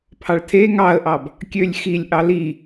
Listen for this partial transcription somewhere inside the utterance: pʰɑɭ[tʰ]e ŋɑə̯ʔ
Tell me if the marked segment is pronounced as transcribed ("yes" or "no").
yes